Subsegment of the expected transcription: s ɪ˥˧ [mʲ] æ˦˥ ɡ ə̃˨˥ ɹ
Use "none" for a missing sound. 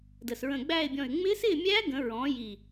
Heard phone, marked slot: mʲ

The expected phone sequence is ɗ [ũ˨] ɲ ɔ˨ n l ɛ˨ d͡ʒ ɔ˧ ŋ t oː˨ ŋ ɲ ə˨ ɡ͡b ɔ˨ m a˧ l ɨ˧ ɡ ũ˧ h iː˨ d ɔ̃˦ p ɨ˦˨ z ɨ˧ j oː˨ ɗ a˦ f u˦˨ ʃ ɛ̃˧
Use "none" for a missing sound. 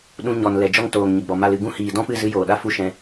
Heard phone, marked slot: ũ˧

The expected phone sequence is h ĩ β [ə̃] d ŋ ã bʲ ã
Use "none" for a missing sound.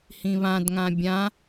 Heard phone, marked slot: ã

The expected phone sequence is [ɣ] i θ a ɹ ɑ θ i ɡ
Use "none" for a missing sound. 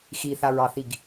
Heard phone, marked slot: x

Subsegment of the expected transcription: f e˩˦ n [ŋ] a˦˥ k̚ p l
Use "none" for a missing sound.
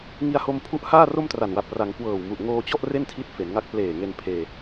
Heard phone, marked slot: ŋ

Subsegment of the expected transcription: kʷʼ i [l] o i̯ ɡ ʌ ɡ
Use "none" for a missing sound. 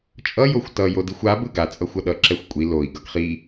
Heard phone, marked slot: l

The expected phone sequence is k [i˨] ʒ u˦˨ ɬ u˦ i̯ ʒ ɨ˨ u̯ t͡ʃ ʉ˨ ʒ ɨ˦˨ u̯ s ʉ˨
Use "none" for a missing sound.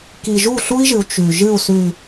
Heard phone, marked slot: i˨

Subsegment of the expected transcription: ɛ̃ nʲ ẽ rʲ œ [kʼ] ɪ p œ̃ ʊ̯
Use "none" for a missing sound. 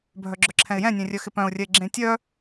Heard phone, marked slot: x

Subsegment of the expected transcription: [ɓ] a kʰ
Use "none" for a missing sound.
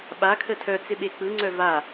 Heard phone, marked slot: ɓ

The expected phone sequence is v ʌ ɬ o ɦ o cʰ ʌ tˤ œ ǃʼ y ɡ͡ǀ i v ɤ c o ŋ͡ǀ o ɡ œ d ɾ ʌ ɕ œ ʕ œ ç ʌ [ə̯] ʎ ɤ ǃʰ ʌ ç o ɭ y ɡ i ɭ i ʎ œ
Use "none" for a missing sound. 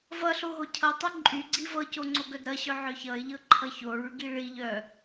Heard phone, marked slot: ɪ̯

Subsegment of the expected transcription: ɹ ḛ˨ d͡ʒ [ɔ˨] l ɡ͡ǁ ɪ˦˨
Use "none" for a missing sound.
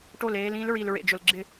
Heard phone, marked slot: ʊ˨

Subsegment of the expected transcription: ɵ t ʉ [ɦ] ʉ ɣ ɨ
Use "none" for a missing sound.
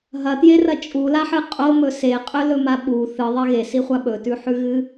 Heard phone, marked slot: ħ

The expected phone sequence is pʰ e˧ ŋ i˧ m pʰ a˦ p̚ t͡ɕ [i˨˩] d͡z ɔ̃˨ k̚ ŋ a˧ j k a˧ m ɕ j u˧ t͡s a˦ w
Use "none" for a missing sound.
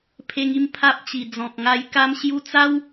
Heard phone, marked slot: i˨˩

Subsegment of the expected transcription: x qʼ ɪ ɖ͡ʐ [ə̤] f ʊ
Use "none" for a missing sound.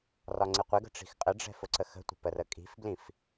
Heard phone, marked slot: ɛ̤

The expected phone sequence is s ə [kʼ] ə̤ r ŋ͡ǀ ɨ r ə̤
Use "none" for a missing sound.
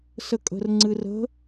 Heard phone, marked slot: kʼ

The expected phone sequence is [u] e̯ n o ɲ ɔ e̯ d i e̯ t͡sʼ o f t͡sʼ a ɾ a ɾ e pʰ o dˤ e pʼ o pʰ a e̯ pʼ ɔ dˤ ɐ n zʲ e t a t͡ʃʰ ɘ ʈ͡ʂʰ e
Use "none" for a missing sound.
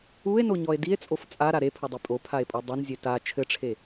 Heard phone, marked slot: u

